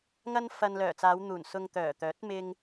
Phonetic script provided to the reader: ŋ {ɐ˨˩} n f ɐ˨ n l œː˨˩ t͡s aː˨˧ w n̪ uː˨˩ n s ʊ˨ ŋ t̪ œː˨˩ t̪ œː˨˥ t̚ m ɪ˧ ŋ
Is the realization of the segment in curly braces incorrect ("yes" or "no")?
yes